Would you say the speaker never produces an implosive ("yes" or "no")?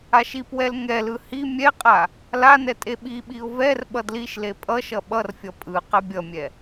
no